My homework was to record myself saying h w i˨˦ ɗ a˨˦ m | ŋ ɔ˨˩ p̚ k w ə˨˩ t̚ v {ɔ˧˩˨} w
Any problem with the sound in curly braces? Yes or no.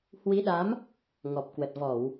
no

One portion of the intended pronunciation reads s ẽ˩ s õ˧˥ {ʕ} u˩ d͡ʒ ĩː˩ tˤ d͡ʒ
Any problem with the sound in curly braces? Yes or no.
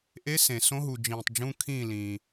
yes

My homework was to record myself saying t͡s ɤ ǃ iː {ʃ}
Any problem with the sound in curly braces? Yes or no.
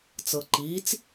yes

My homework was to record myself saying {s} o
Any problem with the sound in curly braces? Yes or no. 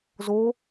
yes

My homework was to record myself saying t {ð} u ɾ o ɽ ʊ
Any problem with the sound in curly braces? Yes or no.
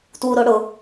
yes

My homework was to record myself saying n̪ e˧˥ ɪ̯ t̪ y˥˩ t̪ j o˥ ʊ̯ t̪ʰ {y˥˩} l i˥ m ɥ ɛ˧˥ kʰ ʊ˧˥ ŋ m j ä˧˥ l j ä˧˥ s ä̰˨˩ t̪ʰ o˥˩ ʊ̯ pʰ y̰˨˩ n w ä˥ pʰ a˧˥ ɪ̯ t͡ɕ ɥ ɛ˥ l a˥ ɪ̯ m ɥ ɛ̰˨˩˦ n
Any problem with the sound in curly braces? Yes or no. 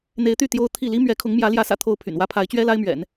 yes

